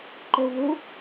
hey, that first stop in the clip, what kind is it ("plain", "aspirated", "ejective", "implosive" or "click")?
click